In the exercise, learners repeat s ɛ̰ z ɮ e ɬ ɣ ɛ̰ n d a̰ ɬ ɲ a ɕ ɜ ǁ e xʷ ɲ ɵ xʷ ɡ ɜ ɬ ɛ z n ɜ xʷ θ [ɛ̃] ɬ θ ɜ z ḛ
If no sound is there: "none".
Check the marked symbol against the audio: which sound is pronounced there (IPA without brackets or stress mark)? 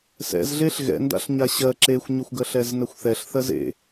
ɛ